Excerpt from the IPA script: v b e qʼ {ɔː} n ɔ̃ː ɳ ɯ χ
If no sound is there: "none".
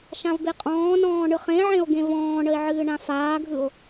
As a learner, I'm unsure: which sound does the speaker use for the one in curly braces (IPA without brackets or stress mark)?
ɔ̃ː